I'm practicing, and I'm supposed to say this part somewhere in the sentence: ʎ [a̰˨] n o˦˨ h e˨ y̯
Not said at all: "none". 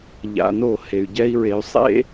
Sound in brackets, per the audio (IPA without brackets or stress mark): a̰˨